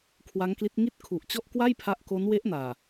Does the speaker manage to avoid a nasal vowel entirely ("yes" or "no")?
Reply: yes